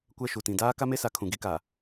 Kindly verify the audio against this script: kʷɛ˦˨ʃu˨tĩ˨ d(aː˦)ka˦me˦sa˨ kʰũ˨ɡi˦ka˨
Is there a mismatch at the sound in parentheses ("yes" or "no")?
no